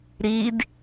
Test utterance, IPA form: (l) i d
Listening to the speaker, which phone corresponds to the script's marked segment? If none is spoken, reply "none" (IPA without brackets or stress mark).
ɾ